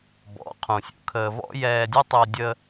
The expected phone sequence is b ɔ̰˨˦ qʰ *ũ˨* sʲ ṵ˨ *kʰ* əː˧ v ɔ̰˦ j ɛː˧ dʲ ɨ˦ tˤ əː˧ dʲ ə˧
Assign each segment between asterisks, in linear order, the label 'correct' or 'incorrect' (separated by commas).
correct, correct